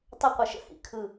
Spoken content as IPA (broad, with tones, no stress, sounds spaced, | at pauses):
tˤ ɵ˥ qʷ ə˧˩ ʃ ə̰˥ h ḭ˩˧ kʰ ɯ˧˩